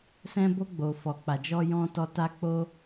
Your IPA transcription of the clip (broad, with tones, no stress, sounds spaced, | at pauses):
s ɛ̃˧ b o˧ ɡ͡b o˨ f ɔ˨ k͡p a˨ d͡ʒ ɔ˧ j ɔ̃˧ t ɔ˧ t a˧ k͡p o˦